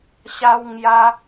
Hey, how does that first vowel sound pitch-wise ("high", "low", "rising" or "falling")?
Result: high